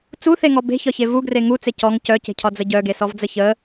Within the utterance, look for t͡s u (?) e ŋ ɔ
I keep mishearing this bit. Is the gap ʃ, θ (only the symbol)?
θ